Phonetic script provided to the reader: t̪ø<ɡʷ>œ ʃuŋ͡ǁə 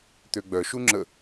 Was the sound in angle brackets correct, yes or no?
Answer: no